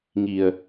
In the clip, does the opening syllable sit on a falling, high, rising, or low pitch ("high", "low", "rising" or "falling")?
low